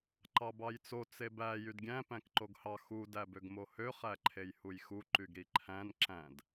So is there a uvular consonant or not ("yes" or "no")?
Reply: yes